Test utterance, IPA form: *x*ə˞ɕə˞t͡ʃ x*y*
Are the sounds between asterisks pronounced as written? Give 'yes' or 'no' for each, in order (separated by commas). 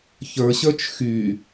no, yes